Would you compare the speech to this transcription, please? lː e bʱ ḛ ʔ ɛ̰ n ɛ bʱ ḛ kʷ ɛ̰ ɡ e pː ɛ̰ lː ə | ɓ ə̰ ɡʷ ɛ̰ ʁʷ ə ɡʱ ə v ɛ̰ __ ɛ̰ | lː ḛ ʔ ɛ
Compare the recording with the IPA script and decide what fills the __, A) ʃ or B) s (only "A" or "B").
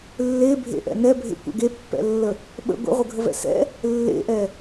B